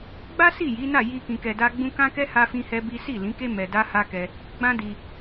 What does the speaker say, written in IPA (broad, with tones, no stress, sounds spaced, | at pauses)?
ɡ͡b a˦ s i˦˨ j i˨˦ n a˦˨ j i˧ k ĩ˧ k ɛ˧ d a˦ ɡ͡b ũ˦ k ã˦ k ɛ˦ h a˦ f ĩ˦ h ɛ˦ b i˦ s i˦˨ l ĩ˨˦ k e˦ m ɛ˧ d a˦ h a˦ k ɛ˧ | ɡ͡b ã˦ d i˧